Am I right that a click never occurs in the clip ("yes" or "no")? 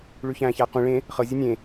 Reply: yes